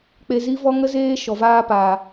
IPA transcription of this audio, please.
k͡pe˧ zi˦vɔ˦ŋə˦ zeː˦ ʃɔ˨vaː˧paː˨

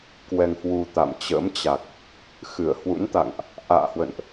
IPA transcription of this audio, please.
kwɛ˧ŋhwu˧t̪a̰˧˨m t͡ɕə̰˧˥mt͡ɕa˨˩k̚ | xɨ˧˩ə̯ hwṵ˧˥nt̪a̰˧˨ŋʔ | ʔa̰ː˧˨hwə̰˧˨nʔ

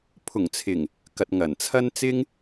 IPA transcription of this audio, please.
pʰʊ˨˩ŋt͡sʰɪ˨˩ŋ | kɐ˨t̚ŋɐ˨˩nt͡sʰɐ˥n t͡sɪ˥ŋ

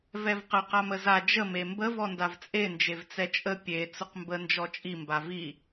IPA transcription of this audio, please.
vɛvqə qaməza d͡ʒə membə vɔndavt͡sʼe nd͡ʒevt͡sɛt͡ʃʼə pʲe t͡sʊqmbə nd͡ʒɔt͡ʃʼi mbavi

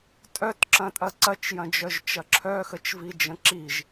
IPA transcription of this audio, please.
tʼœtǁɐ̃tʼɐ ǀɐt͡ʃjɐ̃d͡ʒœʒt͡ʃɐ ǁʰœxət͡ʃvid͡ʒə̃ ǁiʒ

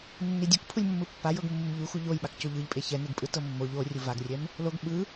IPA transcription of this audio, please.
nːidʲuk pʰulʲmːɯpːajɤɡ mːumʎu xuʎojɓak coʎɯʎpʼe çɛneɡpʼɯtɤ mːoʎ o rʲuvaɡrʲɛm | loɡ ɓɯ

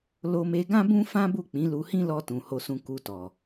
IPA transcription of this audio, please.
lo˧me˧ ɡã˦bũ˦ fã˦bu˦˨k͡pĩ˨˦ lu˧hĩ˦lɔ˧tũ˨ ho˧sũ˧ ku˧tɔ˨

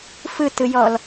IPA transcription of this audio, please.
fɯtɯjɔl

